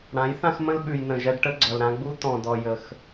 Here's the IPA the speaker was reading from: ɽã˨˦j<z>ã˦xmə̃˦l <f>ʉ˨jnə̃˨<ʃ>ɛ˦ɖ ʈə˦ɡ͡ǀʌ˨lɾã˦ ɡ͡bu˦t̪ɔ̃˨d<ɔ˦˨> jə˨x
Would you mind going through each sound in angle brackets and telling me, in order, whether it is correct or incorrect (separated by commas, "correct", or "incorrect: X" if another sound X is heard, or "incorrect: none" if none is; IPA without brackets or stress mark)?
incorrect: θ, incorrect: ɓ, incorrect: ʒ, incorrect: ɔ˨